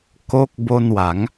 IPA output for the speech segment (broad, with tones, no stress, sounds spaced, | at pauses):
k o˦˥ k̚ b o˧ n w a˩˦ ŋ